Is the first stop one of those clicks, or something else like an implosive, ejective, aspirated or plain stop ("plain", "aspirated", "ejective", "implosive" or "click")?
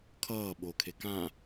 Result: aspirated